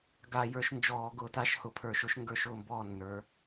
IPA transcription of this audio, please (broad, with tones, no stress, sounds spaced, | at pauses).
ɡ a˧˩˧ j ə˞˨˦ ʃ n d͡ʒ ɔː˧˩˧ ɡ ʊː˧˩˧ t a˧˥˧ ʃ h ʊ˧˩˧ pʰ ə˞˧˩˧ ʃ ʊ˨˦ ʃ ŋ ɡ ə˞˧˩˧ ʃ ʊː˧˩ m b ɔː˧˩ nː ə˞˨˦